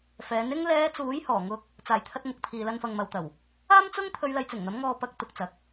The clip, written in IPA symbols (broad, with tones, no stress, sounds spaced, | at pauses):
f ɛː˨˥ n ɪ˥ ŋ l ɛː˨˧ t͡s uː˨˥ j h ɔː˨˩ ŋ ʊ˧ k̚ | t͡s aː˨˩ j t̪ʰ ɐ˧ t̚ ŋ ʊ˨ k̚ t̪ʰ iː˨ l ɐ˧ n f ɐ˨ ŋ m ɐ˨ w t̪ ɐ˨˩ w | aː˥ m t͡s ʊ˥ ŋ t̪ʰ ɵ˨˧ ɥ l ɐ˨˧ j t͡s ɪ˨˩ ŋ n̪ ɐ˨˥ m ŋ ɔː˧ p ɐ˧ k̚ t̪ ʊ˨ k̚ t͡s ɐ˨ k̚